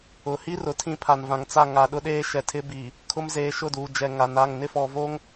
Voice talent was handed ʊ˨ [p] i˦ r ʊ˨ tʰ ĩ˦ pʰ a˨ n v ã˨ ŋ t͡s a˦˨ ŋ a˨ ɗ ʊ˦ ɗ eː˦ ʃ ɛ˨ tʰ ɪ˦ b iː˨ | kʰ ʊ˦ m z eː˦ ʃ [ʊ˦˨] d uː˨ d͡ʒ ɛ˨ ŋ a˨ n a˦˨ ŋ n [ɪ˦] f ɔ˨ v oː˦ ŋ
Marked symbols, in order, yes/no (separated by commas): no, yes, yes